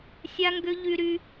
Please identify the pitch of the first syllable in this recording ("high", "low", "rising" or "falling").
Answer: high